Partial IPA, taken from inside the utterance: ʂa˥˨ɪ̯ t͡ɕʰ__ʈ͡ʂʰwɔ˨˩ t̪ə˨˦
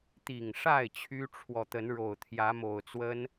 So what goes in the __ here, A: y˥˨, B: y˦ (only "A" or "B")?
B